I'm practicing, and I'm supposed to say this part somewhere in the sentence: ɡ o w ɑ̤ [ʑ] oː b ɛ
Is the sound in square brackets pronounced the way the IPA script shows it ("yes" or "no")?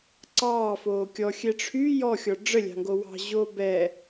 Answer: yes